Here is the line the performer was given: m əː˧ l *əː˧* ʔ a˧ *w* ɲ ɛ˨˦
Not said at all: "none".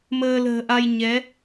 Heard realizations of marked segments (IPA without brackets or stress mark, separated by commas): ə̤ː˨˩, j